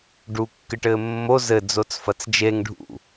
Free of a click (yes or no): yes